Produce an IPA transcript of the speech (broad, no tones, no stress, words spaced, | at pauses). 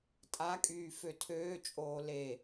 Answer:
tʼakʼyː føtʰøːt͡ʃʼoː le